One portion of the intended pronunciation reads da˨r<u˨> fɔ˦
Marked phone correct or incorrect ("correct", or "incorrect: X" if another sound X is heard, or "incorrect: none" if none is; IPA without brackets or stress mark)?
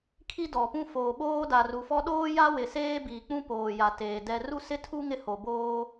correct